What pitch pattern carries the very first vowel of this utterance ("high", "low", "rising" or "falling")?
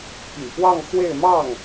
low